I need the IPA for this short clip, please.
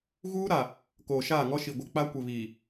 ɣ uː˦ ɾ a˨ | k oː˨ ʃ aː˦˨ ŋ ɔ˦ ʃ i˨ ɡʷ ɪ˨ k͡p a˦ kʷ ɪ˨ β iː˨

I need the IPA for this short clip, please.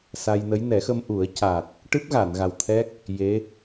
s a˧ j n ə˧˥ j n ɛ˨˩˦ x ə˧ m ʔ u˨˩˦ ə̯ c a˨˩ t̚ | ʈ ɨ˦˥ p̚ ɣ a˨˩˨ n ɣ a˨˩ w t̪ʰ ɛ˦˥ k̚ | j e˧˥

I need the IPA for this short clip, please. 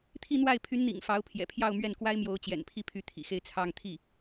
t̪ʰ i˥˧ n̪ w a˥˩ ɪ̯ pʰ y˧˥ n n̪ ḭ˨˩ ŋ f ɑ˧˥ ʊ̯ pʰ j ɛ̰˨˩ pʰ j ɑ˥˧ ʊ̯ m ɥ ɛ˥˩ n k w a˥ ɪ̯ m j o˧˥ ʊ̯ t͡ɕ j ɛ̰˨˩ n pʰ i˥˧ pʰ y˥˩ t̪ʰ ḭ˨˩ x e˥˧ ɪ̯ t͡sʰ ɑ˥˧ ŋ t̪ʰ i˥˩

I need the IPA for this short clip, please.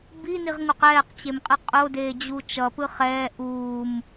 b i n i ʁ ŋ u q ɛː q t͡ɕ e m qʼ ɯ qʼ o d eː d͡ʑ u t͡ʃ ʌ p ɯ χ ɛː ʔ uː m

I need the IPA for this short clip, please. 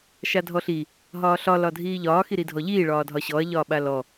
ʃ a dʱ ɔ ɬ i | ɦ ɒː ɬ ɒ l ɒ dʱ iː ʎ ɒː x i ɾ i dʱ ɔ ʎ iː ɭ ɒː dʱ ɒ ɕ ɔ ɐ̯ ʎ ɒː ɓ a l ɔ

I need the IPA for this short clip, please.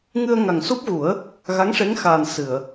ŋ ɨ˧ ə̯ ŋ a˨˩ ŋ s u˦˥ p̚ ɣ u˨˩˦ ə̯ | ɣ a˧˥ ŋ ʂ e˧˥ ŋ x aː˨˩ n s ɨ˨˩˨ ə̯

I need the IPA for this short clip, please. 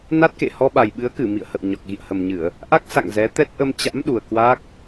n a˦˥ t̚ k ḛ˧˨ h ɔ˧ ɓ a˨˩ j ɓ ɨ˨˦ ə̯ k ɨ˧˩ m ḭ˧˨ ə̯ h ə̰˧˨ w ɲ ɔ˨˩ k̚ ɣ ḭ˧˨ ə̯ h ə˨˩ m ɲ ɨ˧˩˨ ə̯ | ʔ a˦˥ k̚ s a̰˧˨ ŋ z ɛ˨˦ t̪ ɛ˦˥ t̚ ʔ ə˧ m t͡ɕ a̰˧˥ m ɗ u˨˩ ə̯ k w aː˦˥ k̚

